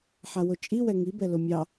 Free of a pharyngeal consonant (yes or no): no